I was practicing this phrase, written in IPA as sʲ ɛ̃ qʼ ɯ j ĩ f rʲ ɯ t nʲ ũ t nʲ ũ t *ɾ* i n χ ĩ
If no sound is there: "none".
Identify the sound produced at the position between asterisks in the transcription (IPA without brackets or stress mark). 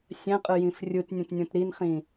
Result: ɾ